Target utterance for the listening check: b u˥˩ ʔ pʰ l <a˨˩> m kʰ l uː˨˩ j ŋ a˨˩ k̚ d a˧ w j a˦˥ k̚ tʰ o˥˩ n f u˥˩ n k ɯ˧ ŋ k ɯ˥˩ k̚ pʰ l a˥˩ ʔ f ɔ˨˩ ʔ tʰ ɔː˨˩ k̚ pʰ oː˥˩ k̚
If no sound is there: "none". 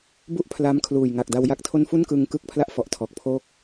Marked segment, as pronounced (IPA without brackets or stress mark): a˦˥